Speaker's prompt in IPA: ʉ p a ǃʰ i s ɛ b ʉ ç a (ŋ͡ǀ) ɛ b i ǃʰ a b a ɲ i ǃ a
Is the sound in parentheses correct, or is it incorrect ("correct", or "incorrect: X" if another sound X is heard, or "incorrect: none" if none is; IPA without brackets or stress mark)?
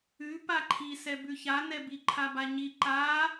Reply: incorrect: n